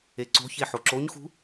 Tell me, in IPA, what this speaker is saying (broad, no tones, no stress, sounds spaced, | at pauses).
e ǀ o̤ ç e ħ o ǁ o ɲ x ṳ